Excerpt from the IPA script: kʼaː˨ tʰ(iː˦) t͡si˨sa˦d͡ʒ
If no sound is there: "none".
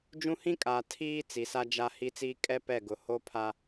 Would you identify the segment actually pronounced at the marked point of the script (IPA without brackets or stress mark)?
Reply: iː˦